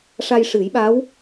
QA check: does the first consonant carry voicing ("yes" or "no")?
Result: no